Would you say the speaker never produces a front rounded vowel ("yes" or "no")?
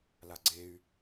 no